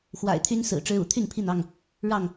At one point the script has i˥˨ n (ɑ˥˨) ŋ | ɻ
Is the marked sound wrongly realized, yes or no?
no